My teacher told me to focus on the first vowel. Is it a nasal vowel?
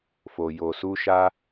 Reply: no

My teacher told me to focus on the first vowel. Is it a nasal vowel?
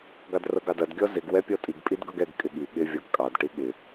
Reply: no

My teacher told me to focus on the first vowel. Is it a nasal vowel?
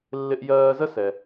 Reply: no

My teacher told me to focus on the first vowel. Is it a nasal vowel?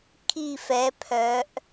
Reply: no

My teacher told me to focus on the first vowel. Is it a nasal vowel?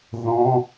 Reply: yes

